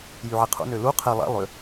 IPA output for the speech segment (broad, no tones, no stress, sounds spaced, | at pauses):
j y ʕ i qʰ ṵ n ø l u qʰ e lˠ æ̰ lˠ ø